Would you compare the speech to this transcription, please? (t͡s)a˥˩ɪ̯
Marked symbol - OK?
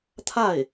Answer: no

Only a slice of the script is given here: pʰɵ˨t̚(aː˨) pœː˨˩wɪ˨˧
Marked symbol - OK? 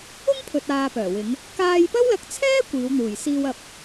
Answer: yes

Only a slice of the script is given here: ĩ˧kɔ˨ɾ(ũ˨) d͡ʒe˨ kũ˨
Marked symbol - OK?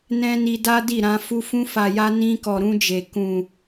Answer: no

